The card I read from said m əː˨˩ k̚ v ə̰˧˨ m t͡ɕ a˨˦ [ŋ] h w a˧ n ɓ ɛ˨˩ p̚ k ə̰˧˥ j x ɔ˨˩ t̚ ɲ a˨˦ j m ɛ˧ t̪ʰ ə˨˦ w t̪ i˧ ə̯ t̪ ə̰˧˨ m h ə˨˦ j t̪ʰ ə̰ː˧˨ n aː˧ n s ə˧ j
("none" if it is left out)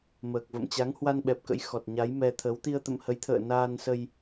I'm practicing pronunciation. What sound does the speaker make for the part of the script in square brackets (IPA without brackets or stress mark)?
ŋ